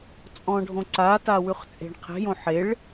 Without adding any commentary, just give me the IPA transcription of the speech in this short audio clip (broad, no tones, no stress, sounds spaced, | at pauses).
t͡sʼ ɔ̃ ɖʱ õ ǀ a t a w ʉ χ t͡sʼ e̤ ɳ qʰ e̤ j õ ħ e ɭ